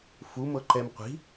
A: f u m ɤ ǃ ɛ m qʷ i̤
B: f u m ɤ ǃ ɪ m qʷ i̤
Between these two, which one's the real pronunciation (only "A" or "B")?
A